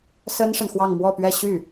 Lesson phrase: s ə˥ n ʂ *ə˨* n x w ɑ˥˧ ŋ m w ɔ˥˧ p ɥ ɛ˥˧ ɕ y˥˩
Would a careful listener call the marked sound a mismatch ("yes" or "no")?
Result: no